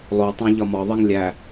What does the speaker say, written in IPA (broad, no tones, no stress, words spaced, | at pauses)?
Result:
lˠo tˤæ̃ʎɒmɒðˤiŋ lʲæ